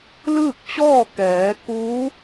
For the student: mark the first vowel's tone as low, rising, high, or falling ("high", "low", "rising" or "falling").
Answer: falling